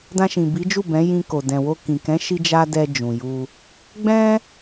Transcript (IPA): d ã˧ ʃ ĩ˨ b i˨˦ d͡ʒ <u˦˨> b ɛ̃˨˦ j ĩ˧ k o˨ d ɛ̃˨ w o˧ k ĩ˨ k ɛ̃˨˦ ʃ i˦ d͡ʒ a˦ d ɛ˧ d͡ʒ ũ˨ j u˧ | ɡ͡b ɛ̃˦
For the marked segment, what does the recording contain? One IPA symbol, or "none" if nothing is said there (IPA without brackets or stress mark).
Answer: u˦˨